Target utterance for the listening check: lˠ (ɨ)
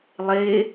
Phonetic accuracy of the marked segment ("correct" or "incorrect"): incorrect